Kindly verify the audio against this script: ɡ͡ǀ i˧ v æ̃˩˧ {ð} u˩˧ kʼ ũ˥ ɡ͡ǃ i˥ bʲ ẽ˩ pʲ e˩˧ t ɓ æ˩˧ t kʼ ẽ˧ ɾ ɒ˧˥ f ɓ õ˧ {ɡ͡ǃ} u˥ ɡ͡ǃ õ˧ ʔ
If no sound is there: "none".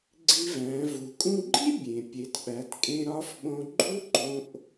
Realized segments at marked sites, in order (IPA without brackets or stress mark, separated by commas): v, ɡ͡ǃ